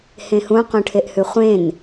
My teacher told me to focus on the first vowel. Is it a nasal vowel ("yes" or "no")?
yes